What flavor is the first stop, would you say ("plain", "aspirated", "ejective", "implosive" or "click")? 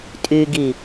ejective